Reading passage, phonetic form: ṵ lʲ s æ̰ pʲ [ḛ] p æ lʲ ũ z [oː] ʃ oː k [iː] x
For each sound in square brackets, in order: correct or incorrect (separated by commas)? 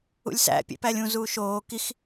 correct, incorrect, incorrect